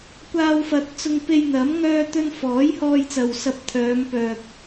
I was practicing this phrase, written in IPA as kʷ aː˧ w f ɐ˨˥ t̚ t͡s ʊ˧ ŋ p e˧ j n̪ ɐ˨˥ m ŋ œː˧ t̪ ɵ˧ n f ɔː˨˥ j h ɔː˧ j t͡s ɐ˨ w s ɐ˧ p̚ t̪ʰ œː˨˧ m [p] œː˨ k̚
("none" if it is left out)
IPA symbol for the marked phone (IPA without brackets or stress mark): p